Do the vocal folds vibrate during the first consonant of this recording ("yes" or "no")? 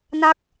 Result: yes